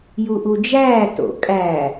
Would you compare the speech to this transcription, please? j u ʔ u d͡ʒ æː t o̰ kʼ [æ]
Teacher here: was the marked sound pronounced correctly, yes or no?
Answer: yes